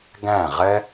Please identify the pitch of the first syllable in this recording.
falling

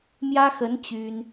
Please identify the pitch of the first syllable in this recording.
high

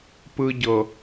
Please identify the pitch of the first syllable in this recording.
high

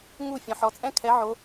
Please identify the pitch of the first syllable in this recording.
falling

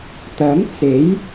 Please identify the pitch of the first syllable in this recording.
rising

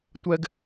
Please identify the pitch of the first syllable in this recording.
high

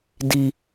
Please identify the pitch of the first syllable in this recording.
high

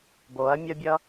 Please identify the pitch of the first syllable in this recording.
rising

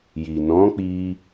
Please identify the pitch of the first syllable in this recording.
low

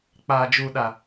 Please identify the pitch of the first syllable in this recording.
low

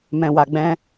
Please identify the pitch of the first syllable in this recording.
low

